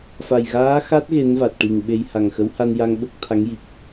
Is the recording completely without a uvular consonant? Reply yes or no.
yes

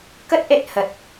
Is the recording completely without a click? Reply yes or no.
yes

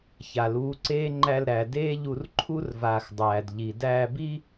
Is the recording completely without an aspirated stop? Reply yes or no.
no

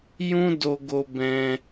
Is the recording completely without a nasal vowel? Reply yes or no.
no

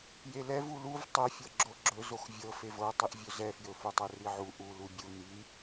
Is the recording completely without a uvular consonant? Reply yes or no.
yes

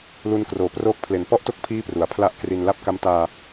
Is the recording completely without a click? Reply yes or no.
yes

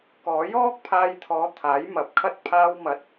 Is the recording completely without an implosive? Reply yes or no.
yes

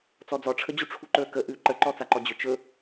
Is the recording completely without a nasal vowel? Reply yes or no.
yes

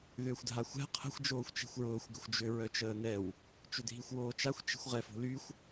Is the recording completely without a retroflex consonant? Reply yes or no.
yes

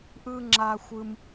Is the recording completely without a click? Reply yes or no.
no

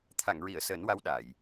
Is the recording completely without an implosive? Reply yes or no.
no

